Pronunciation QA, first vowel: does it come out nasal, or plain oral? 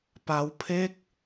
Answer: oral